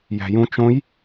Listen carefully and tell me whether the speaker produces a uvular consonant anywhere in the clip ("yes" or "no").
no